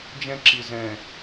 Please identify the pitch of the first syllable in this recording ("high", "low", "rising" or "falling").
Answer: high